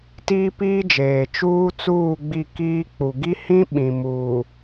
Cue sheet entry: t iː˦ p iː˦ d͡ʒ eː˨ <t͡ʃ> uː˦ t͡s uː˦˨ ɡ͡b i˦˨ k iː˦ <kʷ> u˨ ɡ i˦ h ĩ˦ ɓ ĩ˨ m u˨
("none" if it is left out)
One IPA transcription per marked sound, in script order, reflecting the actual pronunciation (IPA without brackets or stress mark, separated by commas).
t͡ʃ, k͡p